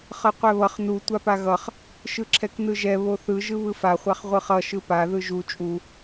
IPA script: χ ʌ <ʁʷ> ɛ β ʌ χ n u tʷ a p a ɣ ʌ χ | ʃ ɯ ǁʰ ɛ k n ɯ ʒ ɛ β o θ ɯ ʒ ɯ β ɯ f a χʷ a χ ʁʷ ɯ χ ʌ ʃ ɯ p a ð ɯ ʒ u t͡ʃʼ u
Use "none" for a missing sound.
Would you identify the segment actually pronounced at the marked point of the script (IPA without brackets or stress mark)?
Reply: qʷ